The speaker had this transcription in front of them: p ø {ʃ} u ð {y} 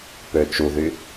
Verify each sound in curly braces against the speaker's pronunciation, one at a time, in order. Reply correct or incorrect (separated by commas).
incorrect, correct